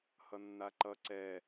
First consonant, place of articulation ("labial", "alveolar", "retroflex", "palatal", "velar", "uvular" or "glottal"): glottal